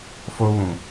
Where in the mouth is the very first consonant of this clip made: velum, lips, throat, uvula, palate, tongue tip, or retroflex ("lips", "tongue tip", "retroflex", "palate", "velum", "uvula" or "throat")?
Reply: lips